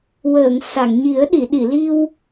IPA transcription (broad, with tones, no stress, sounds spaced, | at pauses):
w əː˨˩˨ ŋ s a˨˩˨ ŋ ɲ i˨˩˦ ə̯ ɗ i˨˩˨ ɗ i˨˩˨ l i˧ w